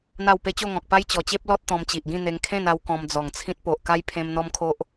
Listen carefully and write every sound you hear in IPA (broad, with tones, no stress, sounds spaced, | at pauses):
n̪ a˥˧ w p e˦ t͡ɕ o˥˧ ŋ ɔ̃˨ k̚ p a˦ j t͡ɕ ɔ˨˩ t͡ɕ e˦ p̚ l ɔ˦ t̚ t̪ ɔ̃˧ m t͡ɕ i˨ ʔ ɡ ĩ˥˧ n̪ e˧ ŋ kʰ ẽ˥˧ n a˧ w k ɔ̃˧ m d͡z ɔ˨˩ ŋ t͡sʰ ĩ˦ t̚ p o˨ ʔ k a˦ j pʰ ẽ˧ m n̪ ɔ˦ m kʰ o˦ ʔ